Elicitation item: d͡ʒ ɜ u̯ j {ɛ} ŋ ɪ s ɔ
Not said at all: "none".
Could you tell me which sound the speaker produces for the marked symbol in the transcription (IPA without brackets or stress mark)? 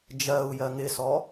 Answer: ɜ